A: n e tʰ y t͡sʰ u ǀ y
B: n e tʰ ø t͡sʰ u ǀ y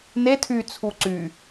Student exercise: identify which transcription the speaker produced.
A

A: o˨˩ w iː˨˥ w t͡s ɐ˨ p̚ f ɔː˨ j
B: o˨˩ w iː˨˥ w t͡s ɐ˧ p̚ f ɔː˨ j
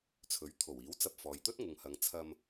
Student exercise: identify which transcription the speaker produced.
B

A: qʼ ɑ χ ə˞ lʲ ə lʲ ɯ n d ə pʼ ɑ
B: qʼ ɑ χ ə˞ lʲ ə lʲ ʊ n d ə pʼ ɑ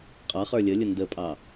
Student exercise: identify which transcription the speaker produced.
B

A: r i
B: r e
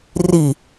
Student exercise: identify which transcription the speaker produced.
A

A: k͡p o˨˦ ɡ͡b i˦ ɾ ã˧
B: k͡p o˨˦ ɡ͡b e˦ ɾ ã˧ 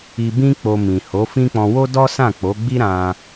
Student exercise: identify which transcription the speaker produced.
A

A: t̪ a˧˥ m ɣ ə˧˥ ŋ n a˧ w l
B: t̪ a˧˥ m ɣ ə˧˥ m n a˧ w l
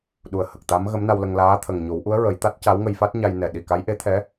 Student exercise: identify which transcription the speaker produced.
B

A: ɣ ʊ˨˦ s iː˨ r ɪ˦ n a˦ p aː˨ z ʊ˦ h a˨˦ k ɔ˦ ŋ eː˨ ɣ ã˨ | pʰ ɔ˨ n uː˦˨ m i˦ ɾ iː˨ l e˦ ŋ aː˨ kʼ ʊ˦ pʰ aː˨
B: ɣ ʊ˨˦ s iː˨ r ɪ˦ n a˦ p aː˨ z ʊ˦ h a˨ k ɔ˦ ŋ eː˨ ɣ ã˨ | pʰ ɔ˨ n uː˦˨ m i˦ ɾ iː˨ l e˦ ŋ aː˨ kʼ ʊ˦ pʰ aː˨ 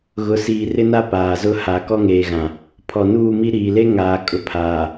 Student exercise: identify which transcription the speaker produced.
A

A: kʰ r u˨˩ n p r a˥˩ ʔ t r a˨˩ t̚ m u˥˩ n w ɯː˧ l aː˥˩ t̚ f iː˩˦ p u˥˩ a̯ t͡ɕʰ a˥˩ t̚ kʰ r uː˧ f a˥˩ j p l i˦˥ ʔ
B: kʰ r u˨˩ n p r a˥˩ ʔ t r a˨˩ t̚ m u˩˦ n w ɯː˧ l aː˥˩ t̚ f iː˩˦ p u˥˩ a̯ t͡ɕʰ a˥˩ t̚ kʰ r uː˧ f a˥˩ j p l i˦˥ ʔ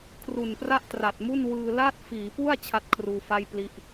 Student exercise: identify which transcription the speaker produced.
A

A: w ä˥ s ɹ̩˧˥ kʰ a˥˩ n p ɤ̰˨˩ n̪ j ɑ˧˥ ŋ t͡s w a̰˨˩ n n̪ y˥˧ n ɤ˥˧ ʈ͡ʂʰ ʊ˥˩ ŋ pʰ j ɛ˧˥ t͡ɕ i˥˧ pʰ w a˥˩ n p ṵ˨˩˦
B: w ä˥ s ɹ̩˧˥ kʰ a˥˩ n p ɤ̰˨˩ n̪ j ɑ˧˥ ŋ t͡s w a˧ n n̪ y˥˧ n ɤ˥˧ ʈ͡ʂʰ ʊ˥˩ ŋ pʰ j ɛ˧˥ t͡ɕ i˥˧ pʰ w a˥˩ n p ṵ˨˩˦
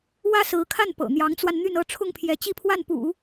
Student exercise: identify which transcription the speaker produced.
B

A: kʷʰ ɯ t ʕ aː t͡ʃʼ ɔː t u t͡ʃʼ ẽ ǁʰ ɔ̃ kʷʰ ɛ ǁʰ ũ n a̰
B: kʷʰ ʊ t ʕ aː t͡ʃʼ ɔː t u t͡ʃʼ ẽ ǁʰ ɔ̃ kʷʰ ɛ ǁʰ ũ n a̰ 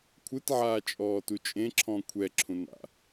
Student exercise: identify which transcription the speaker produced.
A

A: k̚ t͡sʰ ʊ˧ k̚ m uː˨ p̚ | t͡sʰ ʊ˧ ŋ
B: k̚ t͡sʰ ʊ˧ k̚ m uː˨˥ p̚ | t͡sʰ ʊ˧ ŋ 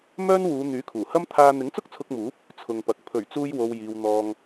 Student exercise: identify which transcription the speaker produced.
B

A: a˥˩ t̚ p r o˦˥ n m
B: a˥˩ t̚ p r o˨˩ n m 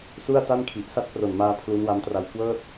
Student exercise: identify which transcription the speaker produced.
B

